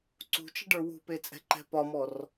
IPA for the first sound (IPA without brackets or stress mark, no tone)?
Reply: ǀ